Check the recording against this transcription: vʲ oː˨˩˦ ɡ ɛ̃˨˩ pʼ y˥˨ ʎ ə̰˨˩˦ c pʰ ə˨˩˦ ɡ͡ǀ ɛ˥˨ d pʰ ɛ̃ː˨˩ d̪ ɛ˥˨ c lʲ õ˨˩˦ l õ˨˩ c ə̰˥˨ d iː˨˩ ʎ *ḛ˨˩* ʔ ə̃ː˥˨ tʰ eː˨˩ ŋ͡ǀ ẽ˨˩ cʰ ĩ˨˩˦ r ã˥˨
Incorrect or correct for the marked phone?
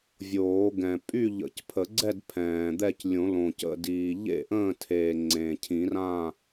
incorrect: ḛ˥˨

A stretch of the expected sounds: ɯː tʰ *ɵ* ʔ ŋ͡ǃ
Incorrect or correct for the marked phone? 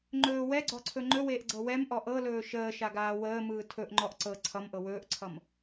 correct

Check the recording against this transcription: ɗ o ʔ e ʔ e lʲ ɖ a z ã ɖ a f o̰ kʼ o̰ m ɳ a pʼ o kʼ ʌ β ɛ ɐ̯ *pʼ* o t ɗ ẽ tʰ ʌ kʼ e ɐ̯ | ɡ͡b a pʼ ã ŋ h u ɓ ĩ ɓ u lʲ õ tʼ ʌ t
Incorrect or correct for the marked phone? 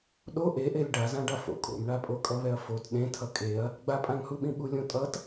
incorrect: f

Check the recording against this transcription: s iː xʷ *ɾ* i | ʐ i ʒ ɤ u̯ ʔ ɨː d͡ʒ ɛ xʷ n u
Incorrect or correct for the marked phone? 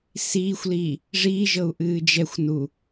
incorrect: l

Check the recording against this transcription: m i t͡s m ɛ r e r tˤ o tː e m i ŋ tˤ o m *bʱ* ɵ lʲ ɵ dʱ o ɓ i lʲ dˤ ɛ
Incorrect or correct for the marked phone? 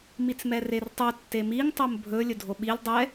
correct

